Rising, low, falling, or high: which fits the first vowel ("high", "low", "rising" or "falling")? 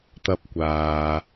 high